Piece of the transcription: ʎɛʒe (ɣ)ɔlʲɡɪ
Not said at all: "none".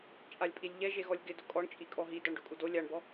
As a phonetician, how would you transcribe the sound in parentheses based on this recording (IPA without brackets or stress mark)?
ɣ